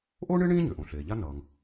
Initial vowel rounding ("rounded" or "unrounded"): rounded